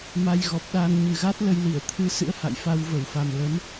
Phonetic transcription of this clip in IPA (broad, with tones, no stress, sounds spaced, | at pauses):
m a˧ j ɣ ɔ˨˩ p̚ ɗ aː˧ n ɲ ɨ˨˩ ɣ a˦˥ t̚ l ə˧ j l i˧˩ ə̯ t̪ʰ ɨ˧ s ɨ̰˧˥ ə̯ h a̰˧˨ j f a˧ w v ə˧˩ w f a˨˩ m l ə˨˦ m